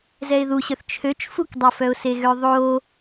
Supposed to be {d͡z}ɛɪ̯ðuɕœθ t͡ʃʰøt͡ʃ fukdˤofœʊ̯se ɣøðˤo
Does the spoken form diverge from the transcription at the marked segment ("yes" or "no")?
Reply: yes